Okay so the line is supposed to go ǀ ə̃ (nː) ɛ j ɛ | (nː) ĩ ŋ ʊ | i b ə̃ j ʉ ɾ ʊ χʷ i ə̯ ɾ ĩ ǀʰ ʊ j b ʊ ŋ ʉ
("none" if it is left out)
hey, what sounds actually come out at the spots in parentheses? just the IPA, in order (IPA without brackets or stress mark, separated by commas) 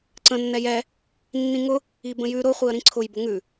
nː, nː